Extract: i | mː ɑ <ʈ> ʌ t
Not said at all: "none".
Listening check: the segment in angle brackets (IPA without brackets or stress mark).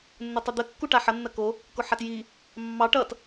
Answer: ʈ